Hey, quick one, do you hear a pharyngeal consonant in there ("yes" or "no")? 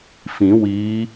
no